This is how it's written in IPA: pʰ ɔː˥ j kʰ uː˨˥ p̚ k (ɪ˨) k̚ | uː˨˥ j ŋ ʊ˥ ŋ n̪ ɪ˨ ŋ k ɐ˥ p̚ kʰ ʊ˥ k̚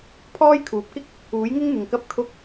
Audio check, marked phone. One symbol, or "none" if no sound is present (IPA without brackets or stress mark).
ɪ˥